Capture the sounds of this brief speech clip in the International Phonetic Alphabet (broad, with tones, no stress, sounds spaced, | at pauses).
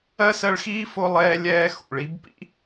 ɜ˥ s ɜ˦ ɭ x iː˥ f o˦ lˠ ɛː˦ lʲ ɛː˦ x ṵ˨ ɭ i˥ b p ḭ˥